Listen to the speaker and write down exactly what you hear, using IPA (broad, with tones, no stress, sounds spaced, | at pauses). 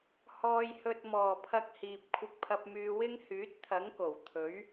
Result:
h ɔː˨ j h ɵ˨ t̚ m ɔː˨˩ pʰ ɐ˧ k̚ h iː˨ p̚ kʷʰ ɪ˧ k̚ pʰ ɐ˧ p̚ m yː˧ w ɪ˥ ŋ h yː˨˥ t̚ t̪ʰ ɐ˨˥ ŋ k o˨˩ w t̪ʰ ɵ˨˥ ɥ